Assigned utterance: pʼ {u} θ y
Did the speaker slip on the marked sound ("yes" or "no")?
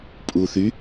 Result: no